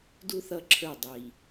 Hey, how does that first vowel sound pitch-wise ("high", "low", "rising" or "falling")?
high